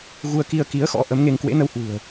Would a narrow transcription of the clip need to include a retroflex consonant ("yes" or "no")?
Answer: no